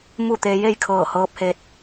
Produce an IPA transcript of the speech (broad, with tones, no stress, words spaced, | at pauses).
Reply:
mu˥˨t̪eː˧ je˥˨jkʰɤː˧˩hɤː˧p̚he˧t̚